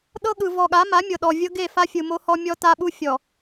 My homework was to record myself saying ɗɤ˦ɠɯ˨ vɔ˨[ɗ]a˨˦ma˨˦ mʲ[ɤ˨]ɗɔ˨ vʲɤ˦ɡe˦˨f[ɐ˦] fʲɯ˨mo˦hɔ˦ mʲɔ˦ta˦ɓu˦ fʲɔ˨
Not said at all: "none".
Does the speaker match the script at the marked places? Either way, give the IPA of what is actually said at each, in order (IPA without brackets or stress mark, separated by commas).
ɠ, ɤ˨, a˦